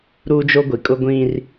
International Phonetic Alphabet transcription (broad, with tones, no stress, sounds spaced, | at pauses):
ɾ uː˦ d͡ʒ o˦ ɡʷ i˨ kʼ ʊ˦ ɡʷ ĩ˦ r